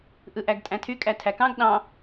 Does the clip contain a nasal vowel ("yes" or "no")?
yes